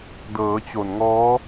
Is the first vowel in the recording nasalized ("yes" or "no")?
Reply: no